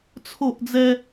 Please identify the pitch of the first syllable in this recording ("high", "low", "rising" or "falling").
falling